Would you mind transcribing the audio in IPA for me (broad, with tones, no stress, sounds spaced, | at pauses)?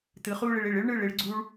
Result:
t̪ ɯ˩˧ χ uː˥˧ ɭ ɪ˩˧ ɭ ɪ˧˩ ɭ ɪ˥ ɭ ɳ ɯ˧˩ ɭ ɪ˩˧ ɭ ɡ͡ǀ u˧ ɭ